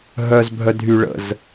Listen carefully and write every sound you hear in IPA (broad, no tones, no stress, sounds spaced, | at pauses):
ɦ œ z bʱ œ dʱ y ɭ ə̰ z